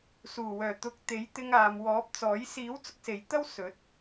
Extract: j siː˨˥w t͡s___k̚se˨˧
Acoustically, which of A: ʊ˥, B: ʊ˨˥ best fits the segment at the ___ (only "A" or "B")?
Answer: A